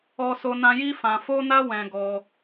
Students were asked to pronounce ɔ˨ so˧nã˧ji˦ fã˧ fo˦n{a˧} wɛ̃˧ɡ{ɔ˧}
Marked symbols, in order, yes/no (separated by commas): no, yes